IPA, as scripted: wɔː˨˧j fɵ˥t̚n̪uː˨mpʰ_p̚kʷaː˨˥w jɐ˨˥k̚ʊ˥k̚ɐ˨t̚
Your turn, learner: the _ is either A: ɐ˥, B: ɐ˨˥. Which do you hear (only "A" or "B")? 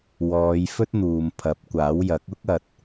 B